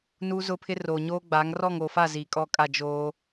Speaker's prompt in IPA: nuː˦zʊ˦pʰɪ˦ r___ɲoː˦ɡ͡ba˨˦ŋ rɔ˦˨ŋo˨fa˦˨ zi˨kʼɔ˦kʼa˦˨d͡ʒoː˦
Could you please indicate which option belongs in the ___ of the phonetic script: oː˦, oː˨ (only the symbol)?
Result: oː˨